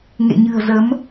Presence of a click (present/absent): absent